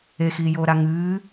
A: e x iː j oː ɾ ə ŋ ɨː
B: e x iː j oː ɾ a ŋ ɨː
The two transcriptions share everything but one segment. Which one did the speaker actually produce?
B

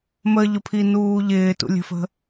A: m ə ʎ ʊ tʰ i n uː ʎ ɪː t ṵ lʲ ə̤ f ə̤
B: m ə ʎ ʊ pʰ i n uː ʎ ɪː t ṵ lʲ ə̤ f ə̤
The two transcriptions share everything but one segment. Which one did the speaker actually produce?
B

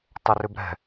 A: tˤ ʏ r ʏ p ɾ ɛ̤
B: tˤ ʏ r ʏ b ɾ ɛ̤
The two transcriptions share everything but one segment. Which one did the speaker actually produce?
B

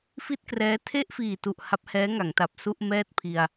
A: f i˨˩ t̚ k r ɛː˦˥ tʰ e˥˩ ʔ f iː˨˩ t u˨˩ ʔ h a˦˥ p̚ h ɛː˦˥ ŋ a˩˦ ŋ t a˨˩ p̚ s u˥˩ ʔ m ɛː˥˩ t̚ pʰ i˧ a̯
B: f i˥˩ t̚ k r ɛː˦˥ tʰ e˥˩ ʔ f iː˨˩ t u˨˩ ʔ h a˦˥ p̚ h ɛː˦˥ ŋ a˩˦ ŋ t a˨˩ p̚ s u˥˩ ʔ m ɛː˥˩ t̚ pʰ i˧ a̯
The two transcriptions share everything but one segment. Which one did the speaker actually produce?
B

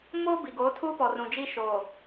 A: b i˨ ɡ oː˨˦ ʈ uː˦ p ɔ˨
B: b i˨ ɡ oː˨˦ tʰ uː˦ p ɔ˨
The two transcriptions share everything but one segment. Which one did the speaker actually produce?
B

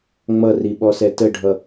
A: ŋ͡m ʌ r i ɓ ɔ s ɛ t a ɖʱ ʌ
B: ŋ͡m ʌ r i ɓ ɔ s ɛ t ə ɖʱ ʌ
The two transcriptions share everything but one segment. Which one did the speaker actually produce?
B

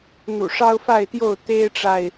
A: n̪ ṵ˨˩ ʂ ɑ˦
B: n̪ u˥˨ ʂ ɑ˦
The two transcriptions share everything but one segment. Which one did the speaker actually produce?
A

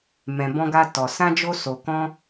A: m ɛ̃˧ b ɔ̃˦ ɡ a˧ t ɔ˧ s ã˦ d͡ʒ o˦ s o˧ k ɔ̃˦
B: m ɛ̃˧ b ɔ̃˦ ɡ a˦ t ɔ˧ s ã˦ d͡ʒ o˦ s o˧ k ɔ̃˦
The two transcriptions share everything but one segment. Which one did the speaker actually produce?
B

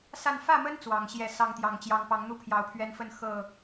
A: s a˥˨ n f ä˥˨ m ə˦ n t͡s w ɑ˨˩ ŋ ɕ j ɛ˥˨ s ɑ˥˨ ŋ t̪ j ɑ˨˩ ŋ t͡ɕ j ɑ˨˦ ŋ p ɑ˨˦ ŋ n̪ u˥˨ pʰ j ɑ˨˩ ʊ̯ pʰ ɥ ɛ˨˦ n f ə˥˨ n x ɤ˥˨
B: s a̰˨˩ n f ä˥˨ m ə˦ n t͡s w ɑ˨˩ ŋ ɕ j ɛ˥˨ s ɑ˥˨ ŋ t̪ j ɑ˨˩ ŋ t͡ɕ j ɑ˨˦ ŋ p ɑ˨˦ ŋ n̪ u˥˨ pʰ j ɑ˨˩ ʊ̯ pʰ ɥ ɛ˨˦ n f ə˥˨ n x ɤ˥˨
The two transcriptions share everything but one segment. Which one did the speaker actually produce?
A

